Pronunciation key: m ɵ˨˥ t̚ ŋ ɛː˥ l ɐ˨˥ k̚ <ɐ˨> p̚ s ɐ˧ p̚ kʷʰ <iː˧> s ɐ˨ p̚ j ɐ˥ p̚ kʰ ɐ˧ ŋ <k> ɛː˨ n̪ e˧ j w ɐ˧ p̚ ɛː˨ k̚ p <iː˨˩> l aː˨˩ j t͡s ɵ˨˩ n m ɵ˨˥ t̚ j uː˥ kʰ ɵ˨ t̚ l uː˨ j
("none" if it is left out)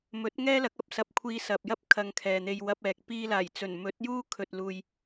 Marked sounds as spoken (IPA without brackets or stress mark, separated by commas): ɐ˨, iː˧, kʰ, iː˧